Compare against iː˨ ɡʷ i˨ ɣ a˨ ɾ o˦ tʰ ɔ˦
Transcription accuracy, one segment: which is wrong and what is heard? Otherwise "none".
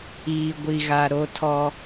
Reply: none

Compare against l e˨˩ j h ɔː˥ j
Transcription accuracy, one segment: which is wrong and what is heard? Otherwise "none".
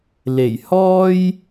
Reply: none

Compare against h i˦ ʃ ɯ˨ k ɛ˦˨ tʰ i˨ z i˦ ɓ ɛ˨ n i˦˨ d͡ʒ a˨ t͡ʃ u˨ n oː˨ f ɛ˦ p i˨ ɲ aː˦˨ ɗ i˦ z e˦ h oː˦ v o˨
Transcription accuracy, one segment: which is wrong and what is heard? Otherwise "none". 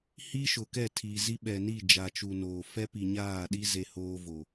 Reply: ɯ˨ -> ʊ˨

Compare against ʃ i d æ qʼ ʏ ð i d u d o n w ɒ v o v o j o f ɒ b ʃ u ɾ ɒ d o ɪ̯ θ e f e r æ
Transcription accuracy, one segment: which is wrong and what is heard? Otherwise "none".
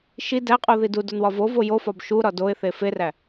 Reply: ʏ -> u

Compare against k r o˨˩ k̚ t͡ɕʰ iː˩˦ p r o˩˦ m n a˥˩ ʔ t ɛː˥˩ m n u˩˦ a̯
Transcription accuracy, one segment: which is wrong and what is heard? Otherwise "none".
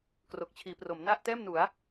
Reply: none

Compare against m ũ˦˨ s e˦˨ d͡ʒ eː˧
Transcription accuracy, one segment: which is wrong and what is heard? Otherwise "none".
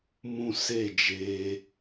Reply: none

